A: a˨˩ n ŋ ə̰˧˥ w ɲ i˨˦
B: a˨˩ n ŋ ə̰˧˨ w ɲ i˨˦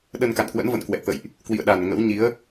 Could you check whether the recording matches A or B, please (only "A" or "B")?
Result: A